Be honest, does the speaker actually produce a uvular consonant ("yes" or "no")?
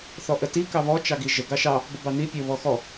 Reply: no